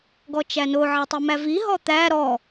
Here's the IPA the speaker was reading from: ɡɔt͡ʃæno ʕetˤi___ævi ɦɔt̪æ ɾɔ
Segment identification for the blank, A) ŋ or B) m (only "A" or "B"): B